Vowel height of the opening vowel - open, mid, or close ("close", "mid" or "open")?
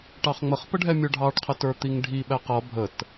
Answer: open